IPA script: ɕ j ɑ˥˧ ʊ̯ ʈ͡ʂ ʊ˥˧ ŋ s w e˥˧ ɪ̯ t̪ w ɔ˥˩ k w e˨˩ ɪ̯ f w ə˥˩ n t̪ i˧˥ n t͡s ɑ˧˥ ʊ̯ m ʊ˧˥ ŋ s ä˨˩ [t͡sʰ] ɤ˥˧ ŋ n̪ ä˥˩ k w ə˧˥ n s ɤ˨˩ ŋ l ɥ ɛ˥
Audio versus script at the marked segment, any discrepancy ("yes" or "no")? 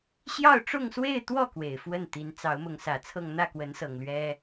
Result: no